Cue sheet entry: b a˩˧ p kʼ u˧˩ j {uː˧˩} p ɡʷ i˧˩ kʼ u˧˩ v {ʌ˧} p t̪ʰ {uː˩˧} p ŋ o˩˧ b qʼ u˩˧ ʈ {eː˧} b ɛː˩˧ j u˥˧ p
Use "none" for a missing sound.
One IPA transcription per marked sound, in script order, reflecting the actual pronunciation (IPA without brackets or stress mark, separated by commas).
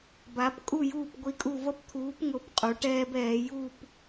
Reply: uː˧˩, ʌ˧, uː˩˧, ɛː˧